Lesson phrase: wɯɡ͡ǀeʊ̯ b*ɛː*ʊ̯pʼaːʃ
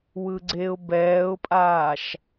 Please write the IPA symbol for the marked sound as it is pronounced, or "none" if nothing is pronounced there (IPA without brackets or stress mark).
ɛː